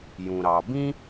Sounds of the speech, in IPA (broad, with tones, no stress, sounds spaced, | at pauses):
j ũ˩ ɾ ɑ˩ b ĩ˥